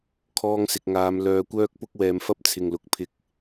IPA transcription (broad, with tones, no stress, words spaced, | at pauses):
kʰɔː˧ŋsɪ˨k̚ŋaː˨˧m lœː˧kʷœː˥k̚ pʊ˥k̚wɛː˧mfɐ˥p̚ t͡sʰɪ˨ŋlʊ˨˥k̚ pʰɪ˧k̚